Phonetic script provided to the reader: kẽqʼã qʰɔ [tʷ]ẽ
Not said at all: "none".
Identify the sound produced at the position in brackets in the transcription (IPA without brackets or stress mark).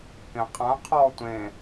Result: tʷ